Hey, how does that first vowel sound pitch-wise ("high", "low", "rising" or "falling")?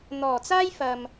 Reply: low